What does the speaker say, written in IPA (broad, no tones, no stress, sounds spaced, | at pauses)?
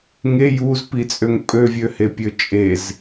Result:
ŋ e j u z p i t͡sʼ ø ŋ pʼ ø vʲ ø h e pʲ ø t͡ʃʼ e z